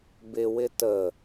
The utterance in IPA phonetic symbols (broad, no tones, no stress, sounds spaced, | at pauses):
b ɪ w ɪ t ə